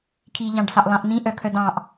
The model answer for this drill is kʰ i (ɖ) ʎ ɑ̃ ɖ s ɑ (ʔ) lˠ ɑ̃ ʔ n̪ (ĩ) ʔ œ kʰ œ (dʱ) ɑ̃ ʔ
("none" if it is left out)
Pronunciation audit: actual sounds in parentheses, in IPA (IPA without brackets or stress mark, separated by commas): none, ʔ, ĩ, d